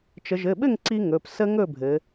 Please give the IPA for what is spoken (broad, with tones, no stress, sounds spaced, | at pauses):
t͡ʃ ə˩˧ ʒ ɘ˩˧˩ ɓ ɘ˥˨ ŋ ǀ i˦ ŋ ɵ˩˧˩ p s ə˦ ŋ ɵ˥˨ bʱ ɘ˩˧